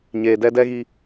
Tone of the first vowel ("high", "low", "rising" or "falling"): low